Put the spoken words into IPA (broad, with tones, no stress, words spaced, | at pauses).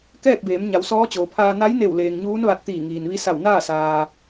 kɛː˥˨k̚beː˩˧m ɲa˩˧wsɔː˧˥t͡ɕoː˩pʰaː˧ na˧˥jne˧˩wleː˩ŋ ɲuː˧˥nʋa˧t̚ t̪iː˧˩ŋiː˩nʋi˧˥ sa˧˩wnaː˥˨saː˩